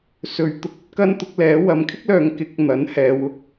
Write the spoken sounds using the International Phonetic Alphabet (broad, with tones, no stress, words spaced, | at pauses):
sɵ˨ɥt̪ʊ˧k̚ɵ˨˥t̚ kɐ˥nt̪ʊ˨˥k̚lɛː˨˥ wɐ˨˧mkʰɪ˥k̚lœː˨˧ŋkɪ˨˥k̚ n̪ɐ˨˥nhɛː˨˧wʊ˨k̚